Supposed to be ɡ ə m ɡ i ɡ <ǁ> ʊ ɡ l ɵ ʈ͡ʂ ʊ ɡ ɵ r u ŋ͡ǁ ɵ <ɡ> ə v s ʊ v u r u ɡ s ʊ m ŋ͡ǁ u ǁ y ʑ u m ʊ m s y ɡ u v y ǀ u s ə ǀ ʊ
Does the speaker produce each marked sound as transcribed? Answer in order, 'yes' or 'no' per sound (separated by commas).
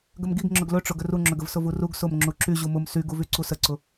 no, yes